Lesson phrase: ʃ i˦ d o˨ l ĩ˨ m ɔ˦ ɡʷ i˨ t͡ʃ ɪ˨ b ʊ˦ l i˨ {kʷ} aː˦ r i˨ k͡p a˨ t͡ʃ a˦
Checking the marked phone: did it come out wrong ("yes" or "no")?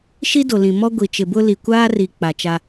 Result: no